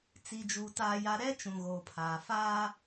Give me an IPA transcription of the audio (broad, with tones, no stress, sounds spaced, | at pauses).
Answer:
t͡s i˨ d͡ʒ uː˨ t aː˨ j a˨ ɾ ɛ˦ t͡ʃ ũ˨ ɣ oː˨ pʰ aː˨ f aː˦